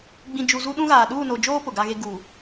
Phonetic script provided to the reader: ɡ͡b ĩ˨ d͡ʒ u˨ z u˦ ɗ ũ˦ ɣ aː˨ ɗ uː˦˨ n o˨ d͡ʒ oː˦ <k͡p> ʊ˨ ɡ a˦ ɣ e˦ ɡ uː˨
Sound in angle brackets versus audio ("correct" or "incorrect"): incorrect